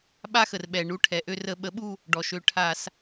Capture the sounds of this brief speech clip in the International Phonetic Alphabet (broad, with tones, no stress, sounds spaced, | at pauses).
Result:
ɓ a˦˥ x ə˩ r ɓ ɛ˩ ɳ u˩˥ ʈʰ ɛ˩ ʔ ø˦˨ r ə˧˩˧ ɓ ə˩˥ ɓ u˦˨ | ɖ ɔ˩ ʃ ø˩˥ ʈʰ a˧˩˧ s